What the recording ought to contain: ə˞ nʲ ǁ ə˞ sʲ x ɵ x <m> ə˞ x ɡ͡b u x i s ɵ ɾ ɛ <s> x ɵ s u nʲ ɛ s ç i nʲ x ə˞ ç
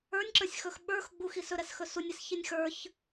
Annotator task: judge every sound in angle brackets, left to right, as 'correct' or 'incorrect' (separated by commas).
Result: incorrect, correct